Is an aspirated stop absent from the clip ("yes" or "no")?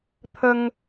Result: no